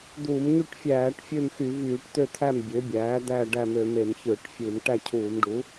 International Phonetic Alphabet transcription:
d̪ uː˧˩˧ m ɲ y˦˨ ʈ fʲ æː˧˩˧ ʈ fʲ ø˦˨ m x y˧˩˧ v yː˧˩˧ ʈ t̪ ø˦˨ t̪ʰ æ˦˨ m bʲ ø˩˥ bʲ æː˩˥ d̪ æː˦˨ ɖ æ˦˨ m ø˧˩˧ m e˧˩˧ m ç ɯː˧˩˧ ʈ fʲ ɯː˧˩˧ m ʈ æ˦˨ cʰ uː˧˩˧ m ɖ u˩˥

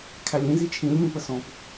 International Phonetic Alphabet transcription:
kʰ æ lʲ ĩ z i t͡ʃʰ ĩ lʲ m ĩ p ə s ɔ̃ p

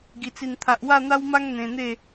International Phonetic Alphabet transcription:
ɡ i˨˩ t͡s i˨˩ n t̪ʰ a˨ ʔ w a˥˧ n̪ a˦ w m a˦ ŋ n̪ ẽ˧ n̪ e˥˧

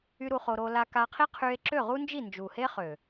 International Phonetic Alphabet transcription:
y˦ ɾ u˧ χ o˧ ɾ o˧ l a˧ k a˧ qʰ i˦ qʰ y˧ e̯ ǁ ø˦˨ ʁ u˦ n d͡ʒ i˦˨ n d͡ʒ u˨ h e˦ χ ø˨

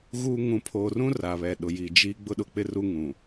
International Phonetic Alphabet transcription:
ɣ u˦ ŋ ũ˨ pʰ oː˨ r ũ˦ r a˨ β ɛ˨ ɗ ʊ˨ j i˨ d͡ʒ i˦ ɡ͡b ʊ˦ ɗ ʊ˨ k͡p ɪ˦ r u˦ ŋ ũ˨

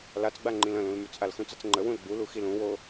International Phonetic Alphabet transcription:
l a t͡s ɡ͡b a ŋ͡ǃ ĩ l ə̃ l ũ l m y t͡s ʔ a l x ũ t͡s ə t͡s ŋ͡ǃ ə w ũ l ɡ͡b u l u x i l ũ w o

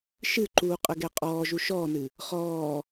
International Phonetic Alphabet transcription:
ʃ ɨ ǃ uː qʼ ə ɡ ɛ qʼ ɔː ʒ u ʃ ɔː n ɨ | χ ɔː

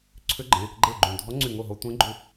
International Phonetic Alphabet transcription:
ǀʰ ʏ˧˥ ɡ͡ǃ ẽ˩˧˩ | ɡ͡ǃ e˥˩ ɡ͡ǃ ũ˧˩ dʱ ɔ˧˥ ŋ͡ǀ y˧˩ ŋ o˥˩ ɦ o˧ tʷ ẽ˧˥ ɡ͡ǃ u˧

